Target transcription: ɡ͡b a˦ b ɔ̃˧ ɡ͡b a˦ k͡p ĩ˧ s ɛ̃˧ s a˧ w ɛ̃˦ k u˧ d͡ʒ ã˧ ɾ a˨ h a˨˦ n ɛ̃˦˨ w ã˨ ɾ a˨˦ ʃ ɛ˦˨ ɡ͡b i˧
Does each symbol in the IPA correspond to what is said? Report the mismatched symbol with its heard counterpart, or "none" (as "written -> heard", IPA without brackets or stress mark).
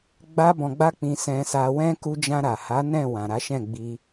ɛ˦˨ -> ɛ̃˦˨